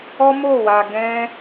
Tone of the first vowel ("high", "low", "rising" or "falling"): high